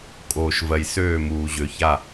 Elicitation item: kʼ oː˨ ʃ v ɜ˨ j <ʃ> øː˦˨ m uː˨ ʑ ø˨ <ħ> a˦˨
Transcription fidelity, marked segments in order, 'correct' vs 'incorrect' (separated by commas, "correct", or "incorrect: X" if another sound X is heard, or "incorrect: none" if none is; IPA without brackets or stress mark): incorrect: s, incorrect: ç